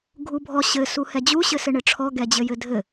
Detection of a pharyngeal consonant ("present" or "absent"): absent